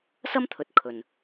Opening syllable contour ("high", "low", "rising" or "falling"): high